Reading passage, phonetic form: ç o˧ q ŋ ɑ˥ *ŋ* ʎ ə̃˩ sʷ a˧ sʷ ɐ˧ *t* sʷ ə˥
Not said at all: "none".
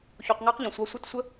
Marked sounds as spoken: q, t

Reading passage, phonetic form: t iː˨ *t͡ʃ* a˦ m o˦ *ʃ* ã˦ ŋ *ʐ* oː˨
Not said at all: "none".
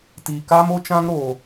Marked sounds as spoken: k, t͡ʃ, ɾ

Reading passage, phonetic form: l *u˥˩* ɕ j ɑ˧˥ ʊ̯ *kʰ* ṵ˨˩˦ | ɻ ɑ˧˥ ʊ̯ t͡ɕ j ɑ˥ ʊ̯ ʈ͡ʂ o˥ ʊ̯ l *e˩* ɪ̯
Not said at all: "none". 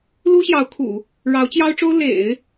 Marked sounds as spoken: u˥, kʰ, ḛ˨˩˦

